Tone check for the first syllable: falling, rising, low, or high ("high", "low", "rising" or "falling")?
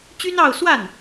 high